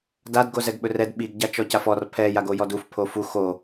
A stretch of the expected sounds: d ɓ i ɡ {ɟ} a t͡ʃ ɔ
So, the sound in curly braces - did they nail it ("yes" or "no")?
yes